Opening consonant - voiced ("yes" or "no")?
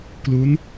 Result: no